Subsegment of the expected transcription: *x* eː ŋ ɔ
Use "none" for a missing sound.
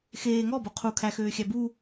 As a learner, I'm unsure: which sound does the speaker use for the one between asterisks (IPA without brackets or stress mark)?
x